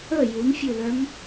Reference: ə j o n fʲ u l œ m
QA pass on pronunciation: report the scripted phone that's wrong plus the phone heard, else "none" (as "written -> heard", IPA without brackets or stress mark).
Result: o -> u